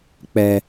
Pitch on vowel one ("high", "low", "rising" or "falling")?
high